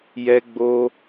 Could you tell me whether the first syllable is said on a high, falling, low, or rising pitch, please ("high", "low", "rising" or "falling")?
high